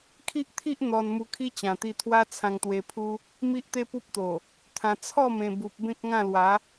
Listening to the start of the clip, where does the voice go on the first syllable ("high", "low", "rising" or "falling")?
high